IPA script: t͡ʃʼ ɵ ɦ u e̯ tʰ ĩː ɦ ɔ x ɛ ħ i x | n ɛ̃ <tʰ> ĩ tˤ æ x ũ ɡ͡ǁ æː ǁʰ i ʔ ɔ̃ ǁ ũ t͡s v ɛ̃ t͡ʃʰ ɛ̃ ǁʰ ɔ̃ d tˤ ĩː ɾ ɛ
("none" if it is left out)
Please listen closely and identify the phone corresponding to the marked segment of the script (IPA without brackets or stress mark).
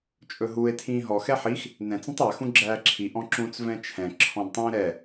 t͡s